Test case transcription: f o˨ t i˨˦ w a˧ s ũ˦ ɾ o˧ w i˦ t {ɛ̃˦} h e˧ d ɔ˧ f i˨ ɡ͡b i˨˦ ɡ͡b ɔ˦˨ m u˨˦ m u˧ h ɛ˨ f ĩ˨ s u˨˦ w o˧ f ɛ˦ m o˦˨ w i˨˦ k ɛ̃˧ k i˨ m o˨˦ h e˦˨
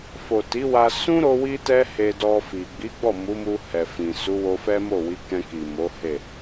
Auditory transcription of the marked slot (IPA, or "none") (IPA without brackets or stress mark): ɛ˦